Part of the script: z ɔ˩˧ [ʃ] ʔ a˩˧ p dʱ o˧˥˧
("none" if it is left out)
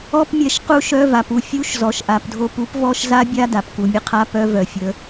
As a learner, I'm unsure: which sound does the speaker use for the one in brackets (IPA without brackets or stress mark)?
ʃ